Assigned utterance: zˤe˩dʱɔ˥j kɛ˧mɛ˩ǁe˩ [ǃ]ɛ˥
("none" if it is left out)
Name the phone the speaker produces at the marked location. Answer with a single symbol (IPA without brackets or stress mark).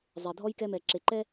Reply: ǃ